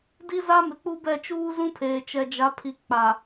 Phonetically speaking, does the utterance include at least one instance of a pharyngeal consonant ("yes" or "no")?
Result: no